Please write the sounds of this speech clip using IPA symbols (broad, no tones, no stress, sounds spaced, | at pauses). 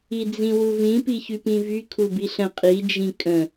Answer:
i d͡z ĩ w u v ĩ p i ç y p ĩ v y kʰ u b i ɬ ə̃ qʼ i d͡ʒ ĩ kʼ ə̃